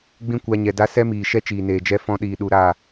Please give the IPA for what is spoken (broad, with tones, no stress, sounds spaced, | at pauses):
ɡ͡b ĩ˦ kʷ a˧ ɲ ɛ˨ d a˦ s ɛ˦ m iː˨ ʃ ɛ˦ t͡ʃ iː˨ n eː˨ d͡ʒ ɛ˦ f ɔ̃˧ ɗ iː˨ ɗ u˨ ɾ aː˦˨